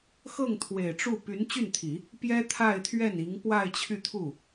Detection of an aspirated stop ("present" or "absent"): present